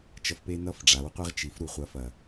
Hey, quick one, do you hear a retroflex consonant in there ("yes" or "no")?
yes